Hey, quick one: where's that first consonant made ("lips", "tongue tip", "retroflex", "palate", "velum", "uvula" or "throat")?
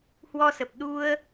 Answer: throat